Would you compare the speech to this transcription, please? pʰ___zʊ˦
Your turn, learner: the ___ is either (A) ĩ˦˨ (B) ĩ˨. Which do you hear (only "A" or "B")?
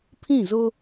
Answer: A